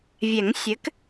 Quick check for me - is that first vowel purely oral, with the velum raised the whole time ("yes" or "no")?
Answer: yes